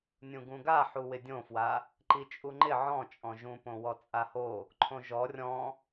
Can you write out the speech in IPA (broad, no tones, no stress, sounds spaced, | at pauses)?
nʲ ũ ɡ ũ ɡ a ħ u w ɪ dʲ õ f w a | ǃ i t͡ʃʼ u ŋ͡ǃ ɪ ʕ ɔ̃ t͡ʃʼ ɔ̃ ʒ ũ p õ w ɔ t͡sʼ a h o | ǃʰ õ ʒ ɔ rʲ ɔ̃